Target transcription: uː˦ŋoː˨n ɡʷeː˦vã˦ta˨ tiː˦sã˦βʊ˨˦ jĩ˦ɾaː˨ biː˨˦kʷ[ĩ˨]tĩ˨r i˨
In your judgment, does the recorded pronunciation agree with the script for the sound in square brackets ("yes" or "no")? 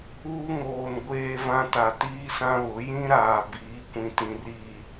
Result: yes